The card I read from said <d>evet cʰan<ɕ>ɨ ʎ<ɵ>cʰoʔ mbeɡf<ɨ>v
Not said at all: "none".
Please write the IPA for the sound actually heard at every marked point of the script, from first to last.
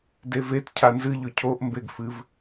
d, z, ɵ, ɨ

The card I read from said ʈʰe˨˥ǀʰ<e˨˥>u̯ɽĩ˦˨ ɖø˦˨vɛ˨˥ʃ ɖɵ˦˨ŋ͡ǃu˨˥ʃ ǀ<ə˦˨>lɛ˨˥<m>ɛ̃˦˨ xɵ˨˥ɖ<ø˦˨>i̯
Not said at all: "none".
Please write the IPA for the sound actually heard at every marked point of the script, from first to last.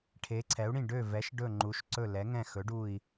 ɛ˨˥, ɵ˦˨, ŋ, u˦˨

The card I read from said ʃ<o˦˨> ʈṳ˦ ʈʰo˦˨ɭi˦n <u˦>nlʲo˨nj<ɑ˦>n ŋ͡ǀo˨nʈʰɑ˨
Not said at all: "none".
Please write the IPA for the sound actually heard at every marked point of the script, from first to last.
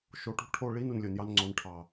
o˨, u˨, ɑ˦

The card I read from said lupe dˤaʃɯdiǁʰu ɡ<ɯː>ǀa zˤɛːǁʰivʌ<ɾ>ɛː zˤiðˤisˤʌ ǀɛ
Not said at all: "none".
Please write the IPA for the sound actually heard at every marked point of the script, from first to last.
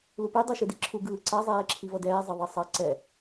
ɯː, d

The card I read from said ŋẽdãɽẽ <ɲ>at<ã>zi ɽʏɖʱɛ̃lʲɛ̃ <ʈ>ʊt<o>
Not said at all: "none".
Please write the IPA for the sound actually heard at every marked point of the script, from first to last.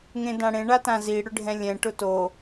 ɳ, ã, ʈ, o

